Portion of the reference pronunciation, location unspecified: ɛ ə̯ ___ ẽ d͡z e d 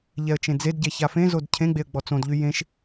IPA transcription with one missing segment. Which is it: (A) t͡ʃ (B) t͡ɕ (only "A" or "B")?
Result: A